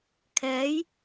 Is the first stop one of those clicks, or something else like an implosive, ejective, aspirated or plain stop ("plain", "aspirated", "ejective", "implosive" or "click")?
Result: aspirated